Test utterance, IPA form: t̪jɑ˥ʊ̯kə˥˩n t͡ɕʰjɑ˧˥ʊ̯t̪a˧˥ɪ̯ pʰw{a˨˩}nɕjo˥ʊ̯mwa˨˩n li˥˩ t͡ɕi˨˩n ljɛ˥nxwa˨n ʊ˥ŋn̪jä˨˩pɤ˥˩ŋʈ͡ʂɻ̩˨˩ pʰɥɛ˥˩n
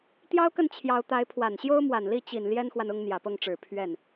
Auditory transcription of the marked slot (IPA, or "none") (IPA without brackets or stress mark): a˨˩